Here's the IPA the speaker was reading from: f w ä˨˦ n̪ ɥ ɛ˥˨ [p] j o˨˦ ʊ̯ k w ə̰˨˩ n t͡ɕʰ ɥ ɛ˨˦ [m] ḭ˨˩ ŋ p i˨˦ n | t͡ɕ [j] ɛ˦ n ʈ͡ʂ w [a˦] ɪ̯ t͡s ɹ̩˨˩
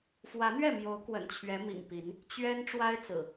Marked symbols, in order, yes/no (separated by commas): no, yes, no, yes